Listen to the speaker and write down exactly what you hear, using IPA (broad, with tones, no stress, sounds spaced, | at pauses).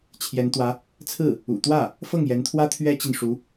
t͡ɕʰ j ɛ˧˥ n t̪ w ä˧˥ | t͡sʰ ɹ̩˥˩ | ṵ˨˩ t̪ w ä˥˩ | f ɤ˥˩ ŋ j ɛ˧˥ n t̪ʰ w ä˥ t̪ʰ ɥ ɛ˥ t͡ɕ i˨ n ʂ u˧˥